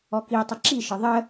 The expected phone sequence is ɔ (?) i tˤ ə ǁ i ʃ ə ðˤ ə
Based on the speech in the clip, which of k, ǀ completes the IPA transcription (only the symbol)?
k